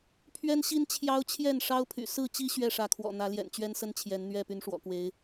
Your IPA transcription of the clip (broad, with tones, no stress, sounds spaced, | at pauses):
pʰ ɥ ɛ˦ n ɕ i˦ n t͡ɕʰ j ɑ˦ ʊ̯ t͡ɕʰ j ɛ˥˨ n ʂ ɑ˦ ʊ̯ pʰ y̰˨˩ s ɹ̩˥˨ t͡ɕ i˦ ɕ ɥ ɛ˥˨ ʂ ä˨˦ kʰ w ɔ̰˨˩ n̪ ä˨˦ l j ɛ̰˨˩ n t͡ɕ ɥ ɛ˦ n s ə˦ n t͡ɕʰ j ɛ˨˦ n n̪ ɥ ɛ˥˨ p y˨˦ n ʂ w ɔ̰˨˩ k w e˨˦ ɪ̯